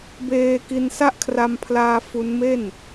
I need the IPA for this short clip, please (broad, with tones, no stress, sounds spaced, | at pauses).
b eː˧ k i˧ n s a˦˥ ʔ kʰ r a˧ m pʰ l aː˧ f u˦˥ n m e˥˩ n